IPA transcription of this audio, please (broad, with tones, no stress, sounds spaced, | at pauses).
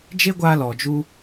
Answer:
d͡ʒ e˦ ɡʷ aː˧ l ɔ˨ d͡ʒ u˧